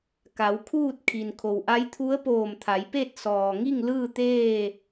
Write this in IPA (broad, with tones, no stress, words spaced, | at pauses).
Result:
ka˩˧wkʰuː˥˨t̚ kʰi˩nkʰo˩wʔa˧˥jt̪ʰu˧˥ə̯ poː˧˩mt̪ʰa˩˧jpe˥˨t̚ sɔː˩ŋi˥˨ŋ lɯː˥˨t̪eː˥˨